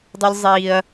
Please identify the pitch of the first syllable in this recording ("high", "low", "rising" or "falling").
high